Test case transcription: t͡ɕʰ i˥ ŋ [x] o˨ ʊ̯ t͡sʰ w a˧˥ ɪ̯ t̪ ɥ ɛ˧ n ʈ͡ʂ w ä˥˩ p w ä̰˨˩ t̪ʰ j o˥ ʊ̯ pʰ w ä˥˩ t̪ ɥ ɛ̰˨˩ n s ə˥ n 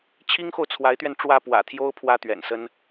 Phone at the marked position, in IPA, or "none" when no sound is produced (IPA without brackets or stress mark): x